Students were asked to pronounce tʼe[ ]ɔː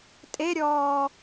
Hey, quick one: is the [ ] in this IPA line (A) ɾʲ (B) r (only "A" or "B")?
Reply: A